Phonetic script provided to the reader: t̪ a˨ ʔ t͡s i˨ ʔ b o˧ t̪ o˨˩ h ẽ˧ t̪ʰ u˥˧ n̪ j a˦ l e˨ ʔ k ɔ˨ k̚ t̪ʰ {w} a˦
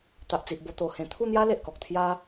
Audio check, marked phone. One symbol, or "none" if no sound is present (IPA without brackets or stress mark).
j